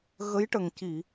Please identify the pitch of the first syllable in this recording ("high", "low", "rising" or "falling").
rising